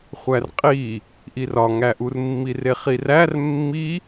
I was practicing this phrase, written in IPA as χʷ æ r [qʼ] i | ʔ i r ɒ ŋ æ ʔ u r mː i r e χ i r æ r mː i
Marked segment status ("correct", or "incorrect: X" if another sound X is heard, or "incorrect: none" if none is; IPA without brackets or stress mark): correct